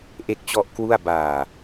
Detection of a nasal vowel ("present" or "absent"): absent